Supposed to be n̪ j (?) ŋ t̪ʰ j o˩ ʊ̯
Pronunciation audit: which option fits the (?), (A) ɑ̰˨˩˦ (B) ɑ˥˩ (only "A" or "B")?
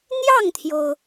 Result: B